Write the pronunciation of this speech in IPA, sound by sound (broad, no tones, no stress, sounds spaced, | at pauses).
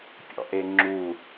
pʲ ɔ̰ ʔ e ŋ͡ǁ u